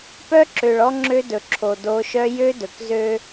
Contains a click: yes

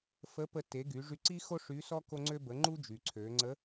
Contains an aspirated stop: yes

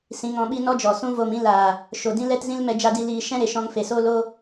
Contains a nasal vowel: yes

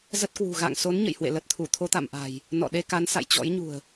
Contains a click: no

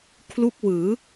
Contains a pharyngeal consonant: no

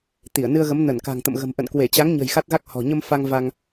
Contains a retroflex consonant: no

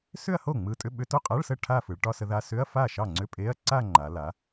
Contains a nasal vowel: no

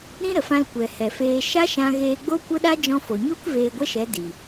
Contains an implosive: yes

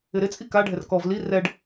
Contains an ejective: yes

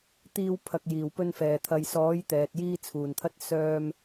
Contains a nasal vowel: no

